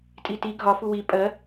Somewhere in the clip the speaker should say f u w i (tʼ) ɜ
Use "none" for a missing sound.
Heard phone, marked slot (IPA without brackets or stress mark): pʼ